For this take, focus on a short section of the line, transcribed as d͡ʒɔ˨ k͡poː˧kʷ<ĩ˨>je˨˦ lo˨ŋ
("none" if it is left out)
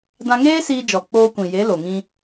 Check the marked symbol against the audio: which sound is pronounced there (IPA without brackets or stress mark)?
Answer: ĩ˨